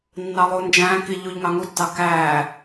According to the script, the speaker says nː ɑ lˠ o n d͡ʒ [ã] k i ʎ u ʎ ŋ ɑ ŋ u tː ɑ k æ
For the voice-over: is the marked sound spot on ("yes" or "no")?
no